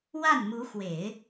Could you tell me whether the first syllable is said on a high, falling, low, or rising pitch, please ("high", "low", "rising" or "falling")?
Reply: falling